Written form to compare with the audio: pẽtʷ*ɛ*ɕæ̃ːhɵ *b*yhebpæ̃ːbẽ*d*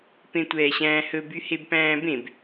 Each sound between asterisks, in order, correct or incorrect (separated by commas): incorrect, correct, incorrect